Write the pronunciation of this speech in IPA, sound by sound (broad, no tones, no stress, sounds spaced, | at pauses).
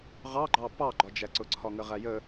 ʁ ɑ ɡ͡ǃ ɑ p ɑ ɡ͡ǃ ɒ d͡ʒ æ ǀ ʊ ǀʰ ɒ ŋ ə ʁ æ j ə